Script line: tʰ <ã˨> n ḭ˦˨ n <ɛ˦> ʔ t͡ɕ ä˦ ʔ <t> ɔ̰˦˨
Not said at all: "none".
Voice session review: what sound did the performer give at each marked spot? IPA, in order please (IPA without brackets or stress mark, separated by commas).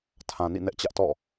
ã˨, ɛ˦, t